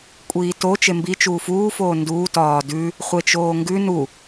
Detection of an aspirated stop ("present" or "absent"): absent